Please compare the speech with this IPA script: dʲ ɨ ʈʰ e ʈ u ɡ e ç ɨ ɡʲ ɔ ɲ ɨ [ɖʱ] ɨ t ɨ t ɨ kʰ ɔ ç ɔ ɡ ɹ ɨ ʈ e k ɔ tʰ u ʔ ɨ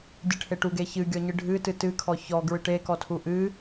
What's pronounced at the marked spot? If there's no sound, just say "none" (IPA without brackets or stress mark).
ɖʱ